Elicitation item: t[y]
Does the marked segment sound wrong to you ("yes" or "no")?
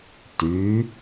no